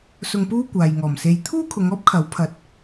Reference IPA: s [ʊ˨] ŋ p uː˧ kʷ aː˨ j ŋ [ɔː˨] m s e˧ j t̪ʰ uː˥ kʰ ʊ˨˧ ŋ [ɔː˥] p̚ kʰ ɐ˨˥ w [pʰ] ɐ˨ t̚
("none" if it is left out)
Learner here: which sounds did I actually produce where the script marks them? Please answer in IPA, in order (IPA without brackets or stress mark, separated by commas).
ʊ˨, ɔː˨˩, ɔː˥, pʰ